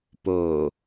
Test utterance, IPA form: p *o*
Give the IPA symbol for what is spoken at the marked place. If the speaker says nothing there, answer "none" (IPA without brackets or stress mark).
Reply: o